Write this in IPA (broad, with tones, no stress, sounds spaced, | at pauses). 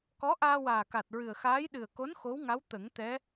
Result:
k ɔ˧˥ ʔ aː˧ w aː˨˩ k a˨˩ t̚ ɹ ɨ˨˩ ə̯ x aː˧˥ j ɗ ɨ˨˩ ə̯ k o˧˥ n x o˧˥ w ŋ a˧˥ w t̪ ə˨˩˦ ŋ t̪ ɛ˧˥